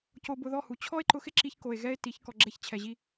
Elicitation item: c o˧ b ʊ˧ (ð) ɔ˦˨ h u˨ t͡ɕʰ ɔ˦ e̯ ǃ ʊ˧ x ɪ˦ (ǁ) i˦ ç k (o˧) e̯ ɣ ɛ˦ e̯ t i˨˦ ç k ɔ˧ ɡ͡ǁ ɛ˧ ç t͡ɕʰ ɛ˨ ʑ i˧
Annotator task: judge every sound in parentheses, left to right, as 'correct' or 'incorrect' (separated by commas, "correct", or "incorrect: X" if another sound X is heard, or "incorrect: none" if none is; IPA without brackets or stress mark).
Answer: correct, correct, correct